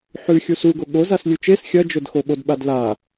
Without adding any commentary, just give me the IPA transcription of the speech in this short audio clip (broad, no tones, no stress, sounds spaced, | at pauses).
ħ ʉ xʲ u s u ɡ o ɠ o z a s lʲ ʉ t͡ʃ e s xʲ ɐ d͡ʒ ɵ d x o ɓ o d ɓ a d l a